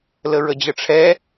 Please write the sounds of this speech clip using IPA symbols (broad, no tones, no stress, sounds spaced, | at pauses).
l ə ɹ ə d͡ʑ ə ʈ͡ʂʰ ɛ